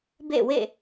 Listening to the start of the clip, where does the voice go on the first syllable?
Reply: falling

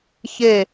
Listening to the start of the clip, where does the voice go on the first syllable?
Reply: falling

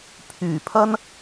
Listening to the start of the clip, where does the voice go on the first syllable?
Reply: low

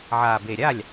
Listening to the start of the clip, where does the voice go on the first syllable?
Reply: low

